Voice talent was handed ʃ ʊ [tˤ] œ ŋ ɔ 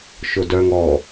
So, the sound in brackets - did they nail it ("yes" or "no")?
no